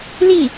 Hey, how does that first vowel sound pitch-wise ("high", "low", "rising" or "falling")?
falling